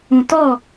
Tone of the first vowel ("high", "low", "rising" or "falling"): low